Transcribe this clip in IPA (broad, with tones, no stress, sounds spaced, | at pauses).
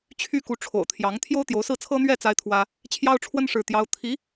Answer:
t͡ɕʰ y˥ k u˧˥ ʈ͡ʂʰ o̰˨˩ ʊ̯ t̪ʰ j ɑ˧˥ ŋ t̪ʰ j o˥ ʊ̯ t̪ j o˧˥ ʊ̯ s ɹ̩˥˩ t͡sʰ ɤ˥ n̪ ɥ ɛ˥˩ t͡s a˥ ɪ̯ t̪ʰ w ä˥ | t͡ɕʰ j ɑ˥ ʊ̯ ʈ͡ʂʰ w ə˥ n ʂ ɻ̩˥˩ t̪ j ɑ˥ ʊ̯ t̪ʰ i˧˥